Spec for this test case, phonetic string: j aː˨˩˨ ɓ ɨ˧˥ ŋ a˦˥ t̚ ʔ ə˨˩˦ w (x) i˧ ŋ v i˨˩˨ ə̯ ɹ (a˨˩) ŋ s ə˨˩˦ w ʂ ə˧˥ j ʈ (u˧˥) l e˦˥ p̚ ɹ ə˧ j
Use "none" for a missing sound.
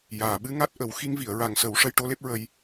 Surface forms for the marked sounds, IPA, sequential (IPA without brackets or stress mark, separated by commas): x, a˨˩, o˧˥